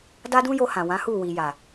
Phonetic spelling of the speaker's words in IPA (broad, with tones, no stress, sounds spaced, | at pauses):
d a˦ d ũ˦ j o˧ h ã˨ w ã˨˦ h u˦˨ w i˨ j a˨